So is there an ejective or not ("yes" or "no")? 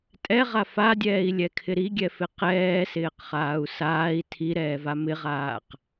yes